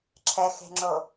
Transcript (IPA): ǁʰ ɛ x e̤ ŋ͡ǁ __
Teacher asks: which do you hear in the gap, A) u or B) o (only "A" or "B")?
B